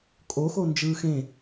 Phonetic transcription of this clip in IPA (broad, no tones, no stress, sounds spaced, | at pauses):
kʼ o x o n d͡ʒ ɯː x ẽ